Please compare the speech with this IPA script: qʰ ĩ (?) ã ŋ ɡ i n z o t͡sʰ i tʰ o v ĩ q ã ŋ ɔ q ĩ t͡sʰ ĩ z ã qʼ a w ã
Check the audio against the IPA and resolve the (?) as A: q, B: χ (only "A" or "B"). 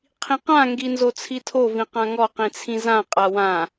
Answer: A